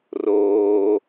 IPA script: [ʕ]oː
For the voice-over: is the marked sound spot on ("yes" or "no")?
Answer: no